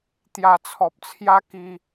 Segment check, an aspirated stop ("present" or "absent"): present